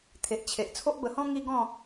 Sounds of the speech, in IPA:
t̪ʰe˨ʔ t͡ɕʰe˨ʔ t͡sʰo˦ʔbə˧hɔ̃˦ ŋi˦ɡɔ̃˥˧

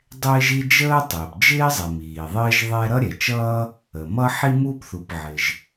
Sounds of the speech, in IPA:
dˤɪː˥ʒi˥ d͡ʒəː˥tˤɪː˩p d͡ʒɪː˥zˤɪ˩ miː˩ðˤɪː˥ʒðˤɛ˥ ɾʌ˥ɾʲɛ˩t͡ʃʌː˥ | ə˩mʌ˥ ħi˥muː˥pθu˩pʕɪ˩ʒ

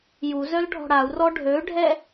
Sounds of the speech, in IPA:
ju zœlɖʱɔ̤ɽau̯rɔ ɖʱøɖʱɛ

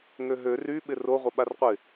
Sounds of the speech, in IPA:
ŋøɦø ryɓɪ roʁʷɪ ɓarqʷɪ

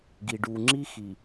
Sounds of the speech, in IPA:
ɡi˨ ɖu˨ ŋ͡ǁi˦xi˨

